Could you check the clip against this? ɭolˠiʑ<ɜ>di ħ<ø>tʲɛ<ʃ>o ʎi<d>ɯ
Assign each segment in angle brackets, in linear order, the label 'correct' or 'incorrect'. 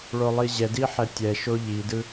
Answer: incorrect: ɛ, incorrect: ɛ, correct, correct

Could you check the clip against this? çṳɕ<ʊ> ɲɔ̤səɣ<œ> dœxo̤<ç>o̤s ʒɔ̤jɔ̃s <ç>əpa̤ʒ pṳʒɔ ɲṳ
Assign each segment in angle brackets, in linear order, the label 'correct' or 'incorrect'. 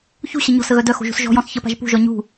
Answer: incorrect: ə, correct, incorrect: ʒ, correct

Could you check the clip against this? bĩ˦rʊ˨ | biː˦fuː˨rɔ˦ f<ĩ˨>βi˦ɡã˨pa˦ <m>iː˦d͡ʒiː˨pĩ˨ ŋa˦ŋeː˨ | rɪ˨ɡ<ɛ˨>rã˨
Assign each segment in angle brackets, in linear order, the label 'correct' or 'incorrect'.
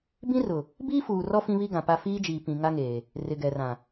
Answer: incorrect: ĩ˦, incorrect: f, correct

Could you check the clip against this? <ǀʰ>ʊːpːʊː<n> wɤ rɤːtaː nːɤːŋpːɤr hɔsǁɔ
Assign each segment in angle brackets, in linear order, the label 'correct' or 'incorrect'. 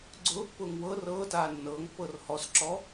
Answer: incorrect: ɡ͡ǀ, incorrect: ŋ

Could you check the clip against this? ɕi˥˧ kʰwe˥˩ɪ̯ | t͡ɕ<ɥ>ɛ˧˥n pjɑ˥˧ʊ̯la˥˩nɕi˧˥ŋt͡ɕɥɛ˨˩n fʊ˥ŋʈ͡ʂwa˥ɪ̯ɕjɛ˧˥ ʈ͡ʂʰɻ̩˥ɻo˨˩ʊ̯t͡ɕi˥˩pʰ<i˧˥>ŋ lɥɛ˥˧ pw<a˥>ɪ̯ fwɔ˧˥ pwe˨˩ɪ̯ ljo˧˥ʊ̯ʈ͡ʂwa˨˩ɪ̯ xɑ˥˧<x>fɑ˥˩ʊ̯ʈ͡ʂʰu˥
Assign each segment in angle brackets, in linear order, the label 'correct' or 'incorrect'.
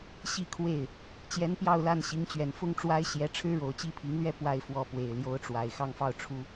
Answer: incorrect: j, correct, incorrect: a˥˩, incorrect: ŋ

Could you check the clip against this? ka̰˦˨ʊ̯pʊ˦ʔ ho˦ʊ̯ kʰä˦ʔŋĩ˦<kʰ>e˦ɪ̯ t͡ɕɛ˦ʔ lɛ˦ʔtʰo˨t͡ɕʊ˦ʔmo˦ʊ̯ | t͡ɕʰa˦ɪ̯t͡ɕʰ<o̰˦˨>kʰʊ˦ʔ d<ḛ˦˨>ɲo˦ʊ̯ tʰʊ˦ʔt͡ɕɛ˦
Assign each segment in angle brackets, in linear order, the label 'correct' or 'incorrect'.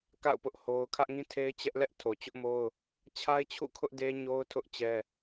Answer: incorrect: tʰ, incorrect: ṵ˦˨, incorrect: e˦

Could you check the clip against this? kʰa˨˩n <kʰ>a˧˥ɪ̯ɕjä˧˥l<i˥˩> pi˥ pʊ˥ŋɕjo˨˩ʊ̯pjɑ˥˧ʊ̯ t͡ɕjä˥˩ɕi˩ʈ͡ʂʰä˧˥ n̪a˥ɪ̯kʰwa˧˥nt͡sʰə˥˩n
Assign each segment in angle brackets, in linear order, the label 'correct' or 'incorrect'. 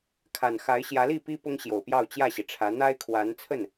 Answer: incorrect: x, correct

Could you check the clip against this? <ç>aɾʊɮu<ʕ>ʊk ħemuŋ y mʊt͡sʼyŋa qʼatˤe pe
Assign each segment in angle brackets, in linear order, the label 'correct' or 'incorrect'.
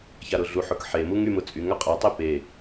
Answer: correct, incorrect: ħ

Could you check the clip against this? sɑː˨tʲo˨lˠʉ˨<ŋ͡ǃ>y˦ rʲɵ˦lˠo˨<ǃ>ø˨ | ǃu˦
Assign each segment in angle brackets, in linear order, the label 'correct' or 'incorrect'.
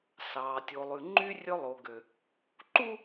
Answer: correct, incorrect: ɡ

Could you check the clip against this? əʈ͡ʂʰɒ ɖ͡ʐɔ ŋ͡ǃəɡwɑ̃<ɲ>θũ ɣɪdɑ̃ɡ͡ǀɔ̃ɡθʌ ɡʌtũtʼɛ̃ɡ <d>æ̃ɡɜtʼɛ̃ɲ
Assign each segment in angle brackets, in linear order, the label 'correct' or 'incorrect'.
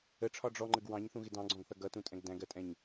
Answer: correct, correct

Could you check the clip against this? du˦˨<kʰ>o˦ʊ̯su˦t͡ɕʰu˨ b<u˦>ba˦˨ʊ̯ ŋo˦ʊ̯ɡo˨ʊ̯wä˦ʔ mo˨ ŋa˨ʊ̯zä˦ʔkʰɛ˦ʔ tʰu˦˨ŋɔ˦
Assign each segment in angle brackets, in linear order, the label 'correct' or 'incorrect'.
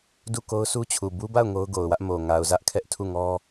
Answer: incorrect: k, correct

